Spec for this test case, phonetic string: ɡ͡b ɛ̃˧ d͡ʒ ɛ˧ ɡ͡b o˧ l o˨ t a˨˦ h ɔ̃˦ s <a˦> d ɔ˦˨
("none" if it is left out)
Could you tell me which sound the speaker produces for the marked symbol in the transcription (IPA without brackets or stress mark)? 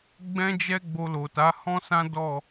ã˦